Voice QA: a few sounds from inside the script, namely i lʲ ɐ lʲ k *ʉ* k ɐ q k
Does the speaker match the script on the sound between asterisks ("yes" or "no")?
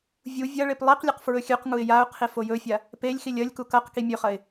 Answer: no